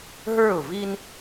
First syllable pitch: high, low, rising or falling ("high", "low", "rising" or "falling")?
falling